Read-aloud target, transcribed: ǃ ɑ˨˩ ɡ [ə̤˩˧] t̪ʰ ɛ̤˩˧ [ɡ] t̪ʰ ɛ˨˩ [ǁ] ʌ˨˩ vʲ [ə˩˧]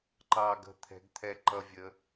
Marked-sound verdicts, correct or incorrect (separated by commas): incorrect, correct, incorrect, correct